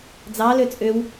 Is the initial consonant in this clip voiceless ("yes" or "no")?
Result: no